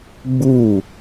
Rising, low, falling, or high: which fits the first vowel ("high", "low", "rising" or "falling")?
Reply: falling